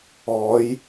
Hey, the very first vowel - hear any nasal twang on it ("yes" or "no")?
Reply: no